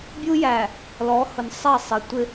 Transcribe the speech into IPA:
bʲ u˦ j æ˨ | l ɔ˨˦ h ʊ˨ n sˤ ɛ˦˨ sˤ ɪ˨ tʷ ɪ˦

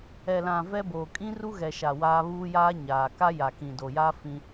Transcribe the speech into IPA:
ɛ˨ l ã˨ v ɛ˦ b oː˨ kʼ ĩ˦ r u˦ ɣ ɛ˨ ʃ a˨ w aː˦ β uː˦ j aː˦ ɲ aː˨ k a˦ j a˨ k ĩ˨ d o˨ j aː˦ f ĩ˦

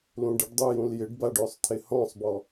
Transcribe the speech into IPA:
l ũ ɖ ɪ ɖ dˤ u j ũ l j ɪ ɖ b a ɖ ø sˤ t̪ʰ ɪ h ɔ̃ sˤ b ɔ

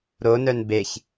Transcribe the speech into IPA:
ɾ o n œ n b e ç

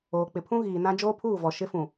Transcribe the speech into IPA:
oː˨ k͡p ɪ˨ pʰ ũ˦ ɣ iː˨ n ã˦ d͡ʒ oː˦ pʰ uː˦˨ v ɔ˨ ʃ ɪ˦ f ũ˨

